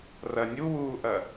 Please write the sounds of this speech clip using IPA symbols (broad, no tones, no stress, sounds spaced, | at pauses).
r ɐ nʲ u w uː ʔ ɐ